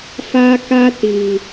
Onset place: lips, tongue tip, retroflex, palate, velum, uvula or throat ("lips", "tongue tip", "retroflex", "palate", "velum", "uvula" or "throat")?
lips